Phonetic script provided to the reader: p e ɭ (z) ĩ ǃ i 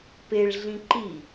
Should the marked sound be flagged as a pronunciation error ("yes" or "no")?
yes